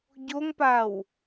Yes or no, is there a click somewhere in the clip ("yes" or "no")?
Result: no